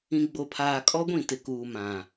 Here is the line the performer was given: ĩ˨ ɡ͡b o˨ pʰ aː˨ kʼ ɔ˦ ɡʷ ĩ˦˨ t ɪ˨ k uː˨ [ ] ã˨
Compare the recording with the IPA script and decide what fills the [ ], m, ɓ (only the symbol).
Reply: m